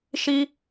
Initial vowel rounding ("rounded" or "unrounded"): unrounded